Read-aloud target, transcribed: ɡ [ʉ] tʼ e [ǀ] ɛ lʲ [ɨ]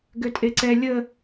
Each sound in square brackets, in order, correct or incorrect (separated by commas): incorrect, correct, incorrect